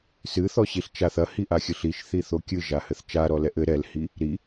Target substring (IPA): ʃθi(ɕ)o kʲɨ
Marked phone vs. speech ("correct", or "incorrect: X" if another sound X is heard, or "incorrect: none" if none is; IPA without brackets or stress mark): incorrect: θ